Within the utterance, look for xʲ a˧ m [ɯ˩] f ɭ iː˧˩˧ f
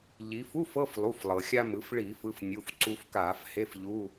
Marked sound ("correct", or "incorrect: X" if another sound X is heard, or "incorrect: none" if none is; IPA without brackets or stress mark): incorrect: ɯ˩˧